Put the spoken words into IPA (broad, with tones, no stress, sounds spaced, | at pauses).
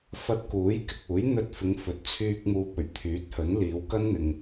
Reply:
f ɐ˧ t̚ k uː˨˥ j k ɪ˨ k̚ uː˨˥ j n̪ ɵ˧ t̚ f ɪ˨˧ ŋ f ɵ˨ t̚ t͡sʰ yː˧ k̚ m uː˨ p̚ ɵ˨˩ ɥ t̪ʰ yː˨˥ t̚ h ɵ˨˥ n l iː˨˧ w k ɐ˥ n n̪ ɪ˨ ŋ